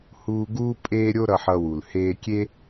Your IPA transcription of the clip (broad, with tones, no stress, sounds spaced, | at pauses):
h uː˦ ɡ uː˥ pʼ eː˥ ɾʲ o˥ ɾ ʌ˦ ħ ʌ˦ w u˨ l h eː˦ kʲ e˥